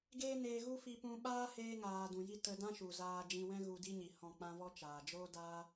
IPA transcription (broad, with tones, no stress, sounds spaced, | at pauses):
ɡ eː˦ n eː˧ ɣ u˦ f i˧ p ũ˧ ɓ aː˦ h eː˧ ŋ aː˨ d ũ˨ j i˧ t ə˧ d ã˦ ʃ u˨ z aː˧ d͡ʒ ĩ˧ w ɛ̃˦ ɣ u˧ d i˦ ɲ i˨ h ɔ̃˦˨ k͡p ã˦ v ɔ˦ t͡ʃ aː˨ d͡ʒ oː˦ d aː˦